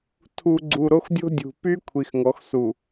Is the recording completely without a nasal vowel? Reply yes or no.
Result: yes